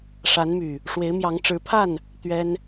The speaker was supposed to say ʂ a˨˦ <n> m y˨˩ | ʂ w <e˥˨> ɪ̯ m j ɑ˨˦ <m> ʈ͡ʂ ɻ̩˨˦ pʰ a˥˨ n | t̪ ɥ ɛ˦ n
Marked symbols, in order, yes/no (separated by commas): yes, no, no